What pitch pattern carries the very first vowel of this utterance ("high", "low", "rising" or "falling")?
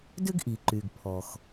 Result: high